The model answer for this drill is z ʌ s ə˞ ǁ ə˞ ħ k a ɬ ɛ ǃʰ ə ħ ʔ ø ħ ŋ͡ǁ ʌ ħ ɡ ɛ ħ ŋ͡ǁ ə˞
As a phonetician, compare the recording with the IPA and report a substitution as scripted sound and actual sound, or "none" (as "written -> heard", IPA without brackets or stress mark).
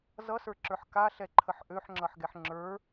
none